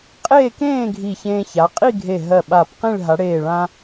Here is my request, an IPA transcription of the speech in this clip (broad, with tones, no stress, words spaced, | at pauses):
qʼeː˥˧kẽː˥˧ ɡʱi˧˩çẽː˧ ça˩˧qʼi˥˧ɡʱe˧˩ ɦɜ˧˩ɓa˧˩pqĩ˥˧ɭ ɦa˩˧ɽeː˧˩ɭã˧